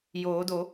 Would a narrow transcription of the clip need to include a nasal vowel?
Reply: no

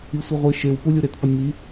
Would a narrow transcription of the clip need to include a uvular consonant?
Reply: yes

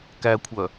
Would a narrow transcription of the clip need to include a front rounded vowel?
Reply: yes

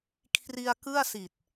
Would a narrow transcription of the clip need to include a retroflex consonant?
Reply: no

